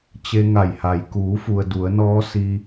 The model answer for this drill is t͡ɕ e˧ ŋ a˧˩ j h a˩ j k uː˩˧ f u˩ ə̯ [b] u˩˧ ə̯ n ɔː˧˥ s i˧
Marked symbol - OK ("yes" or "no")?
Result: no